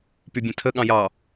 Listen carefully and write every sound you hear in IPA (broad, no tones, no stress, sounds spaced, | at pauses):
p y bʲ ẽ tʰ ə ɠ ɑ̃ j ɑ